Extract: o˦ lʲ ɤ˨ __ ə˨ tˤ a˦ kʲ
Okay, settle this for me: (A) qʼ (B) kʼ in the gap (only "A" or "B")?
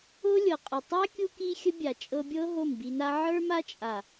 A